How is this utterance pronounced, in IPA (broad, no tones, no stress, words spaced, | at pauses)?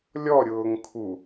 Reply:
lʲɔɾʲʊːŋ kʰu